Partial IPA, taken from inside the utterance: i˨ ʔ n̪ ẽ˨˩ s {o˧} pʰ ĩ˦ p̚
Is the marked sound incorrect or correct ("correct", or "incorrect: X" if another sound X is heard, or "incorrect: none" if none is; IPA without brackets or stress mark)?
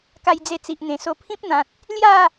correct